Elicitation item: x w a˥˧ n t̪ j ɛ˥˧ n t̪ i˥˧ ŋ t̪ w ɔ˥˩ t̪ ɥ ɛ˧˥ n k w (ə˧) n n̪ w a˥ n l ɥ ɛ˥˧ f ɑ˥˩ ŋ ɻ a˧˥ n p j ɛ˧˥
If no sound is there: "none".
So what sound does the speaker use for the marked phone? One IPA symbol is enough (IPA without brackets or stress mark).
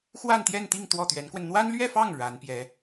ə˧